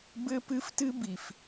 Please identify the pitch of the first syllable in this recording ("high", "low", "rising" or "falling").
high